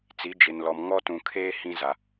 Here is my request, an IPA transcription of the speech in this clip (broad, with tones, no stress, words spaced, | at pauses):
t͡si˨˦d͡ʒɪ˨nlɔ˨m ŋɔ˦tũ˨kʰeː˦ hĩ˦za˨